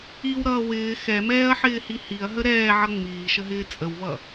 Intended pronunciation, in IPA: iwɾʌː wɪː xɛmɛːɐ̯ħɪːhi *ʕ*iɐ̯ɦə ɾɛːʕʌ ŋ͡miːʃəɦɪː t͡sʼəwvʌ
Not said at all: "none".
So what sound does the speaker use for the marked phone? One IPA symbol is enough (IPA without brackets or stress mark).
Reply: h